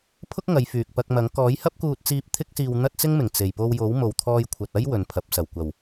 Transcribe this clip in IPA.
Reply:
pʰ ʊ˥ k̚ ŋ ɐ˨˧ j f yː˨ k̚ p ɐ˧ k̚ m ɐ˨˥ ŋ k ɔː˨˥ j h ɐ˥ p̚ k uː˧ t̚ t͡s iː˧ p̚ t̪ʰ ɪ˥ k̚ s iː˧ w n̪ ɐ˥ t̚ t͡s ɪ˥ ŋ m ɪ˨˩ ŋ t͡s e˨˩ j p o˧ w j o˨˥ w m o˨ w t̪ʰ ɔː˧ j kʷʰ ɐ˨ t̚ ɐ˥ j w ɵ˨ n pʰ ɐ˨˥ p̚ s ɐ˨˩ w kʷ ɐ˨˩ w

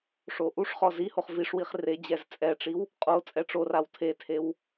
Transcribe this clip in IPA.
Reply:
ʂ o ʔ u ʂ χ ɔ z i h o χ v i ʂ w i χ r e d͡ʑ ɛ z t͡sʼ ɛ ʈ͡ʂ i w | qʼ o t͡sʼ ɛ ʈ͡ʂ o r a w tʰ e tʰ e w

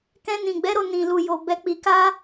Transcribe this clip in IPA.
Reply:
k ɛ̃˧ n ĩ˨ ɡ͡b ɛ˨˦ ɾ o˦˨ n ĩ˨ l u˨ j o˨ b ɛ˨ k͡p i˨ k a˧

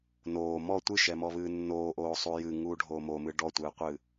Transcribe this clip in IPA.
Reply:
n oː m ɔ tʷ ɨ ʃ ɛ m ɔ β ɨː nː oː ʔ oː sˤ u j ɨ ŋ uː ɖʱ oː m o m ɨ ɖ ɔ tʷ ɨː qʷ ɨː

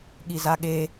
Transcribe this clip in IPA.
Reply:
ɠ i z a ɠ e

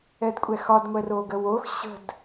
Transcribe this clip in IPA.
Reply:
ɛ d kʷʼ ɛ x ɒ d ŋʷ ɛ r o ɡ ə w o x ɕ ə̤ d

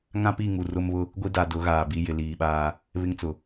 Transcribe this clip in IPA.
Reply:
ŋ ã˦ p i˦˨ ŋ u˨ r ʊ˦ m β ʊ˦ | ɡʷ i˦ d a˨ d ʊ˨˦ ɣ aː˨ b i˦ j ɪ˨ l iː˨ ɓ aː˦ | β ɪ˦ ŋ t͡s ʊ˨

